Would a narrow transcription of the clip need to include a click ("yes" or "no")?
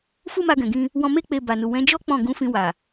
no